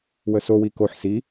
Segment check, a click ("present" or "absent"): absent